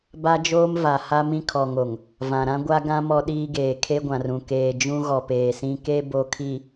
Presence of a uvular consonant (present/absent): absent